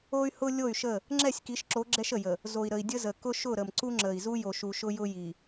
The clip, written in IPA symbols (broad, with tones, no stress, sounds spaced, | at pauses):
o˦ y̯ h ʊ˦ lʲ o˦˨ y̯ ʃ ə˦˨ | ŋ͡ǁ ɛ˦˨ sʲ k i˨˦ ʃ ǁ o˨˦ ɡ͡ǁ ɛ˦ ʃ ə˨ j ə˨ | z o˨ i̯ ɾ ə˨ i̯ dʲ ə˦ z ə˨ k ʊ˦ ʃ ʊ˦˨ ɾ ə˨ m ǀ u˦ ŋ͡ǁ ə˨ i̯ z u˦ j o˨ ʃ u˨ ʃ ʊ˦ j ʊ˦ j i˨